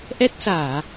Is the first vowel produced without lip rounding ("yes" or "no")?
yes